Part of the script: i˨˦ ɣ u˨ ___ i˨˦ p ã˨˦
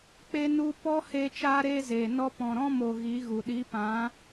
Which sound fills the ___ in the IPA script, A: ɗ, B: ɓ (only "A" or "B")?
A